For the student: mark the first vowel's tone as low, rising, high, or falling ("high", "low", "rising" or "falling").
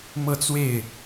falling